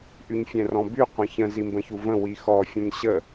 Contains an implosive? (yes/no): no